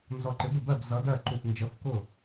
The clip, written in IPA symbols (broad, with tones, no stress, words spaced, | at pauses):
nzɔ˧˩ǃɪ˨˥bə˧˩ bɜ˥˩b zʌ˨˥dɜ˥˩ǃu˧˩f nd͡ʒə˨˥fkʊ˥˩